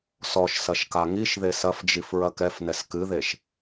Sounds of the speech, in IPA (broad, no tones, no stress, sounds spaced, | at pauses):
s ɔ ʃ s ɐ ʃ k a ŋ i ʃ ð e s ɐ f d͡ʒ i f ɹ ɐ k ɛ f n ɛ s k ɨ ð e ʃ